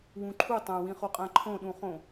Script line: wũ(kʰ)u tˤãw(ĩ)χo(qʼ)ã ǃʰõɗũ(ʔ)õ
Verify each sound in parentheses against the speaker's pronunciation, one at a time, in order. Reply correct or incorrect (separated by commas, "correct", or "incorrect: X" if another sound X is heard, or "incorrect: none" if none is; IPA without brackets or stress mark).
incorrect: ǃʰ, correct, correct, incorrect: χ